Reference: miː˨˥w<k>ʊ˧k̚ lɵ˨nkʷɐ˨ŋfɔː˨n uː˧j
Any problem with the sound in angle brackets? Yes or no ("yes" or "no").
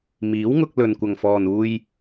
yes